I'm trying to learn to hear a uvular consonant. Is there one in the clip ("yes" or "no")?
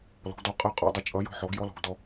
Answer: yes